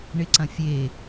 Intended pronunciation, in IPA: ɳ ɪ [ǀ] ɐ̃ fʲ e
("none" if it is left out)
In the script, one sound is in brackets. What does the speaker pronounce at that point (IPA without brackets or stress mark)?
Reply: ǀ